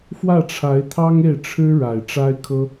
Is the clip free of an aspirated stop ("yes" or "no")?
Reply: no